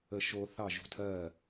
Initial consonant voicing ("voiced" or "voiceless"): voiceless